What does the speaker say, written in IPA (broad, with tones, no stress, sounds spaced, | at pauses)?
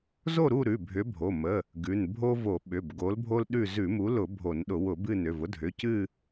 z o˦˨ ɾ u˦˨ ɾ ʉ˩˧˩ bʱ ʏ˨˥ bʱ o˩˧˩ m ə˩˧˩ | ɡ ʉ˩˧˩ n bʱ o˦ v o˧˩˧ ɓ ʏ˩˧˩ b ɡ o˨˥ l bʱ o˦ l ɗ ʉ˦˨ z ʉ˧˩˧ m u˨˥ l ʊ˧˩˧ bʱ o˧˩˧ n ɗ ʊ˧˩˧ w ʊ˧˩˧ b ɨ˦˨ n ʏ˩˧˩ v ʊ˦ dʱ ʏ˩˧˩ c ɨ˦˨